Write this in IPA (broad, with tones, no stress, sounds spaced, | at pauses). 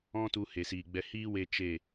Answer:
ɔ̃˦ t u˧ h e˨ s iː˨ ɡ͡b ɛ˧ h iː˦ w e˧ t͡ʃ e˦˨